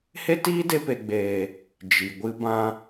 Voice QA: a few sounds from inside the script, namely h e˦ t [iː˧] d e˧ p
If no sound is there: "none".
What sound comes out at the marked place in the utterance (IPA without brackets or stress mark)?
iː˦